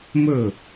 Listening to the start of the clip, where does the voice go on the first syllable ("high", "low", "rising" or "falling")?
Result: falling